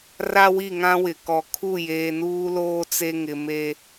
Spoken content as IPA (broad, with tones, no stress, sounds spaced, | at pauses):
r a˦ w i˦˨ ŋ ã˦ w ɪ˨ k ɔ˨ kʰ u˦˨ j eː˨ n uː˦ l oː˦ t͡s e˦ ŋ ɪ˨ m e˦